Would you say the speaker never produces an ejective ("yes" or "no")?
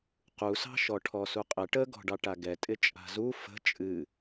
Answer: no